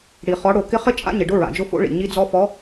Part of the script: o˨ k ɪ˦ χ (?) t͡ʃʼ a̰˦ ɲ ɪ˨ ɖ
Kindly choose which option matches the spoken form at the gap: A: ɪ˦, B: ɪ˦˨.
A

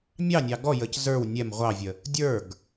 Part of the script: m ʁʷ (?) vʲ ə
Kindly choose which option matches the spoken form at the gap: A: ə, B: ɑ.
B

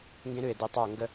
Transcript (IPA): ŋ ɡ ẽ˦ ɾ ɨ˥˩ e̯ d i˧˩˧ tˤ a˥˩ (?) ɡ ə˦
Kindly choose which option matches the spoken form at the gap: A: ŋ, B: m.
A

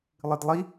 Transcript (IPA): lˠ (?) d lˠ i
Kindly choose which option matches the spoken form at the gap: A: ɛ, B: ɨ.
B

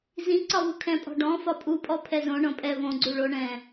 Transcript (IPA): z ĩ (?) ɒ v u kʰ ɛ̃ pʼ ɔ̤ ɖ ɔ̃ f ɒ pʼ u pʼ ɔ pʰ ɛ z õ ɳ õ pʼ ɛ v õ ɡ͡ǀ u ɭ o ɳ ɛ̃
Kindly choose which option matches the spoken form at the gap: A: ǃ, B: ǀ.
B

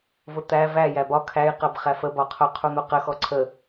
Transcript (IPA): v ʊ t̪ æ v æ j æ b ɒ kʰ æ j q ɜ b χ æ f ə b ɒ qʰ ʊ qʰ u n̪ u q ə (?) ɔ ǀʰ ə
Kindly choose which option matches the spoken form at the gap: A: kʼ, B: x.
B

